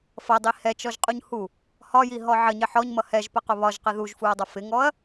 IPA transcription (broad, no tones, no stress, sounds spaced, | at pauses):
f ʌ dˤ i h ɛ t͡ʃ ɔ ʒ qʼ u ɲ h u | h ɒ j i ɦ ɔ ʕ ə ɲ ɪ ħ ɔ ɲ m ʌ h ɛ ʒ p ə q ʊ β ɒ ʒ q ɪ ð u ʒ f u ɐ̯ dˤ ʌ f ɪ ŋ ɔ ɐ̯